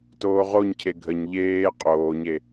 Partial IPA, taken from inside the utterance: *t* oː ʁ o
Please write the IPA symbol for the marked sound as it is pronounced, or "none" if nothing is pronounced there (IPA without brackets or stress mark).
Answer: t